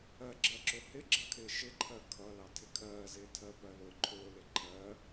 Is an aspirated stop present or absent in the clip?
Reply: present